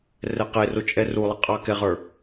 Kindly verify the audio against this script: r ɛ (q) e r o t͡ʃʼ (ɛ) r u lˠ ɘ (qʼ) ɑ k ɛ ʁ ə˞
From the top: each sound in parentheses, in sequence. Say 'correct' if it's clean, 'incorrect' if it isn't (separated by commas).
correct, correct, correct